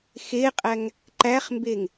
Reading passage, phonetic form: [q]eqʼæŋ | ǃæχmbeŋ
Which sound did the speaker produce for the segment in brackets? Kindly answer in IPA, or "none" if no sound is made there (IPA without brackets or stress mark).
x